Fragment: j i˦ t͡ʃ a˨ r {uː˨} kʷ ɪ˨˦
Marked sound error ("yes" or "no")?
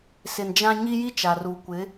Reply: no